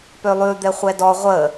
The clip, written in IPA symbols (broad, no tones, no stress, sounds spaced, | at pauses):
p ø lˠ ʉ d̪ ɛ χʷ ɛ d ɔ ʁʷ ə